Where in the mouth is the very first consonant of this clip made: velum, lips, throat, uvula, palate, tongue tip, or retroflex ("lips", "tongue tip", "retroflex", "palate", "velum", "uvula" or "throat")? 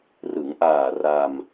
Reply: tongue tip